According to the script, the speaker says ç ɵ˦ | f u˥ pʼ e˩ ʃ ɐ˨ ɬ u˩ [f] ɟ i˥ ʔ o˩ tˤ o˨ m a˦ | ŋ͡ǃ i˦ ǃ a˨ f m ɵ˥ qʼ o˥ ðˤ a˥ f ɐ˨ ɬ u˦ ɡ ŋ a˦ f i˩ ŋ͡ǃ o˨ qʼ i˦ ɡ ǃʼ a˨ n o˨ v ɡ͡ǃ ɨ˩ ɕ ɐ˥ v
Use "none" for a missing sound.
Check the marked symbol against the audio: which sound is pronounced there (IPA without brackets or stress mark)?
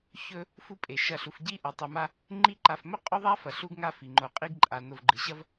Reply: f